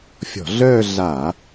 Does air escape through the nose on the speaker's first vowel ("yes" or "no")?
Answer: no